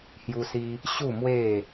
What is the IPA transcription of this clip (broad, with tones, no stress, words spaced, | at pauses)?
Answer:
hju˧si˧ | ɕu˥˧mwe˥˧